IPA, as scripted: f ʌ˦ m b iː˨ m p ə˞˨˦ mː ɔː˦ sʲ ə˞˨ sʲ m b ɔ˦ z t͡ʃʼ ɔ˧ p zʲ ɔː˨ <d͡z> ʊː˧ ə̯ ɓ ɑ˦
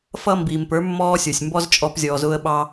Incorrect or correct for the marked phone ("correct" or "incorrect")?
incorrect